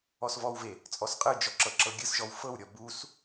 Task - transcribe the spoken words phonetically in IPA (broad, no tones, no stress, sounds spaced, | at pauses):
ɔ s v ɔ w v e | t͡sʼ ɔ s qʼ ɯ d͡ʒ ɔ ǁ ɤ ǁ ɤ ɡʲ ɯ s ʒ ɔ w f ɤ w ɾʲ ɔ b u s